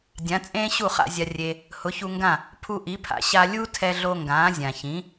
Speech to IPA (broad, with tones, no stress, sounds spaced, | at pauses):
dʲ ã˩˥ t͡sʼ ẽː˥ ɕ u˥˩ χ a̰˧ zʲ a˧ rʲ e˧ | h ʊ˩˥ ç u˧ ŋ ɡ ã˥˩ | pʰ u˧ ʔ i˩˥ pʰ a̰˩ ɕ a˧ lʲ u˥ tʰ ɛ˧ ɮ o˧ ŋ ɡ ãː˩˥ zʲ ã˩ ç ĩ˩˥